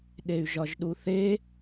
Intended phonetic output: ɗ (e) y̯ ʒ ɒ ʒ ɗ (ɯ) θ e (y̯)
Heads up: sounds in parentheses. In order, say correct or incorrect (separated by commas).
correct, incorrect, incorrect